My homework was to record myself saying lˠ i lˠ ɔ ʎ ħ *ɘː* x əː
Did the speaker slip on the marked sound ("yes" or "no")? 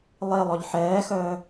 yes